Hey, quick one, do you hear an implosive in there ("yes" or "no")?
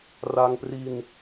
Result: no